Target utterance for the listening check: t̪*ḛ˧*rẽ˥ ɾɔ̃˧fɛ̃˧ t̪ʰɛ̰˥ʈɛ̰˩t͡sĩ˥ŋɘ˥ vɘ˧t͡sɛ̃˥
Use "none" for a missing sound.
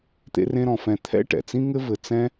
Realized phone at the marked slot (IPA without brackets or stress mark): ḛ˥